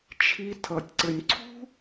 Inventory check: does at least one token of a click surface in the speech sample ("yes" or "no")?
yes